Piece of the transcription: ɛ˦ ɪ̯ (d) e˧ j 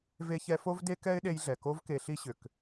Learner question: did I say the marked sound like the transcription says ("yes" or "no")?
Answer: no